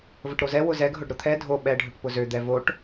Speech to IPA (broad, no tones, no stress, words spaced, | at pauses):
vəʈɾozɛ wʊzɛɡ ɦʊɖɾʊt̪ʰɛ dʱo ɓɛ ɖʱøʈpʊzø d̪ɛvoʈ